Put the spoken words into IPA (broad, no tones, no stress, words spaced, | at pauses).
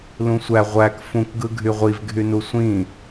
lũsʷæ ʁʷæk fũk ɡɯɡʱyʁʷiv ɡʱynusʷĩ